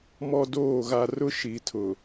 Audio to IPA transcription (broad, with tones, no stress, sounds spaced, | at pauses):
m ɔ˦ d oː˦˨ ɣ a˦ r ʊ˦ ʃ i˨ tʰ ʊ˨